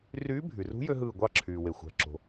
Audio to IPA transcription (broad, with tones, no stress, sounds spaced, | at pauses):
r yː˧˥ bʱ y˩ r ṳ˧˥ j ø˥ ɦ ɯː˦˨ ɡʷ ɑ˦˨ ǁʰ yː˩ w e˩ xʷ æ̤˩ ǁ o̤˩